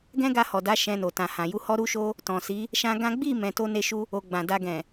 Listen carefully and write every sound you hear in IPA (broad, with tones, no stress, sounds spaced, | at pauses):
ɡ ɛ̃˦ ɡ a˧ h ɔ˨ d a˨˦ ʃ ɛ̃˧ n o˨ t ã˨ h ã˨ j u˧ h ɔ˦ ɾ u˦ ʃ o˦ | t ɔ̃˨ s i˨˦ | ʃ ã˧ ɡ ã˦ ɡ͡b i˦˨ m ɛ̃˧ t o˦ n e˦ ʃ u˦ | o˨ ɡ͡b ã˨ d a˧ ɡ ɛ̃˨